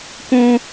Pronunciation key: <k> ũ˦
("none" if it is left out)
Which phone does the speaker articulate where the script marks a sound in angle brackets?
k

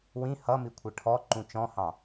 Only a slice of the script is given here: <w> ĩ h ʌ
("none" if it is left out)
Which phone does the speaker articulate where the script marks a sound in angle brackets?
w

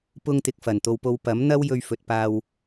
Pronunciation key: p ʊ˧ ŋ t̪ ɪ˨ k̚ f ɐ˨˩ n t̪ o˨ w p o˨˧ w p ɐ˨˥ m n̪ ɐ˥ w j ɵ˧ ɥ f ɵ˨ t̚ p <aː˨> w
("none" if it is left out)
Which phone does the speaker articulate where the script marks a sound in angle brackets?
aː˧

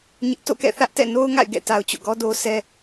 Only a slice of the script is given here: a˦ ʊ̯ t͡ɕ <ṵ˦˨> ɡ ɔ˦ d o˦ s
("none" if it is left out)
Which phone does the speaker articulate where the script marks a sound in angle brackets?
o̰˦˨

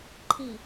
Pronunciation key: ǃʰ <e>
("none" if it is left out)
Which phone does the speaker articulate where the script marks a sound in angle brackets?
i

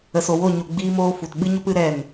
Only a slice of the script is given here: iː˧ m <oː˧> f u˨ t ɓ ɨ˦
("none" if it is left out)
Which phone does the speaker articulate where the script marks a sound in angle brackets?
oː˧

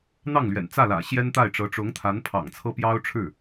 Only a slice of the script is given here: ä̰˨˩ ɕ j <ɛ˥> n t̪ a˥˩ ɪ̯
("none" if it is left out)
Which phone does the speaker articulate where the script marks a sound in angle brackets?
ɛ˥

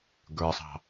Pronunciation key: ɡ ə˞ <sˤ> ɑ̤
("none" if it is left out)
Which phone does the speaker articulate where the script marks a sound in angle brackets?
sˤ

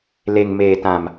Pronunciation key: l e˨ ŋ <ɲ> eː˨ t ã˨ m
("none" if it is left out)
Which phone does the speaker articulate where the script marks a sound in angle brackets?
m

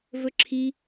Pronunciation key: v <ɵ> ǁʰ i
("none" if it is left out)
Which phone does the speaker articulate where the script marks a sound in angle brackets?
ɵ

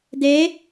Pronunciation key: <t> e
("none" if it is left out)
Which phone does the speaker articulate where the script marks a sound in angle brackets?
d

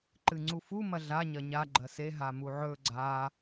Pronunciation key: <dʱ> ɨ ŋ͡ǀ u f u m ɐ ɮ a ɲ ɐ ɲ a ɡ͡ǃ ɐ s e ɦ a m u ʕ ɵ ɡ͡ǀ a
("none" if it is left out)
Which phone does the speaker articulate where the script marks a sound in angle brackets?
ǃ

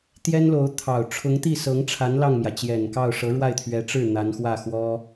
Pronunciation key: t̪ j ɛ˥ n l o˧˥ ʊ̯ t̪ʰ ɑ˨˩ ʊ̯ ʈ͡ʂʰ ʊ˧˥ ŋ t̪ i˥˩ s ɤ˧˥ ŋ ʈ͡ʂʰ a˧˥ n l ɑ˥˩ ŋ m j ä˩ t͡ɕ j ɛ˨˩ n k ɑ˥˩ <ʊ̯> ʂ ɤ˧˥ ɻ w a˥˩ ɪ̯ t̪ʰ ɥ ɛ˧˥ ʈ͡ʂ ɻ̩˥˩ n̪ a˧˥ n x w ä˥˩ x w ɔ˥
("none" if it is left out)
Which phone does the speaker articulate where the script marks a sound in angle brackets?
ʊ̯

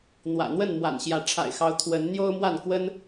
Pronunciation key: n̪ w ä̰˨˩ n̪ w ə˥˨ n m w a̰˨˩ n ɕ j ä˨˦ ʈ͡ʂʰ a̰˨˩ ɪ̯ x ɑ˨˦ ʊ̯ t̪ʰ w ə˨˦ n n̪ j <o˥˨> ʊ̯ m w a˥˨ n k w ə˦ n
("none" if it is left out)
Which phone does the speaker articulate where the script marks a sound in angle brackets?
o˦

